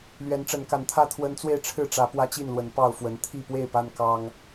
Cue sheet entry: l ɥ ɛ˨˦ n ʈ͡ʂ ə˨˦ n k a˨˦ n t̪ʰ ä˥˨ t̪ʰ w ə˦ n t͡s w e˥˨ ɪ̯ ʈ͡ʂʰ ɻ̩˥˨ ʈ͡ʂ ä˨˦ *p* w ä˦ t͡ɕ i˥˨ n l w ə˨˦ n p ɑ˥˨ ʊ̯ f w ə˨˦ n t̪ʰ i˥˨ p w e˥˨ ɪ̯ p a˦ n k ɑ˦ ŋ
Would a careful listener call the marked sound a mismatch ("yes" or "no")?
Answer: no